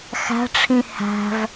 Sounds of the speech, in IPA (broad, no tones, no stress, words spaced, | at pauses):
xæ̤ʈ͡ʂʰĩ hæ̤v